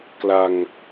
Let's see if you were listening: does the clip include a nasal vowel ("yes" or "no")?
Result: no